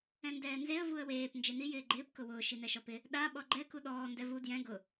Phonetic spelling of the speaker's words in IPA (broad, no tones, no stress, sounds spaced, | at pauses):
ɛ̃ n d ɛː n z e ə̯ v u ə̯ w eː p n d͡ʒ e n i j ɪː ɡ͡ǃ ɪː p k ʊ w ʊː ʃ i n ɛ ʃ ɔ p ɪ | ɗ a ɓ ɔ ɡ͡ǃ ɛ k u ɗ ɔː n d ɛ v u d j ɛ̃ ɡ ʊ